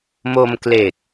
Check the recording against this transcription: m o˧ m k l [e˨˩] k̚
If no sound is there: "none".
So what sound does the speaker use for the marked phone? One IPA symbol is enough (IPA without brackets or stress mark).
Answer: e˨˩